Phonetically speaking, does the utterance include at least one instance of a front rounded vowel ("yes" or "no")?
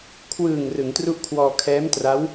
no